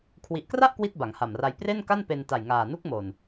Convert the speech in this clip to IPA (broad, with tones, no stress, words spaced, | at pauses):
kʰwi˨˩ʔkra˥˩ʔ kwi˥˩t̚ba˩˦ŋha˨˩mra˧j pre˥˩nka˥˩npe˧n ta˨˩jŋaː˨˩nu˦˥k̚mo˨˩n